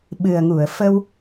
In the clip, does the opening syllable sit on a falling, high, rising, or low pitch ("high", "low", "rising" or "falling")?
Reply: low